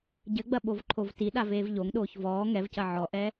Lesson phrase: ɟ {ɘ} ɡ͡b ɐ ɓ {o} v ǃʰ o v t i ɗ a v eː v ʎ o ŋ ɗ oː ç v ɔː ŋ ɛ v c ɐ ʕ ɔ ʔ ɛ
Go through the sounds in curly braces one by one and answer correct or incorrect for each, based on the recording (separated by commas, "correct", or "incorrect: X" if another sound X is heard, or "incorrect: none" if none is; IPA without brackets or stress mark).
correct, correct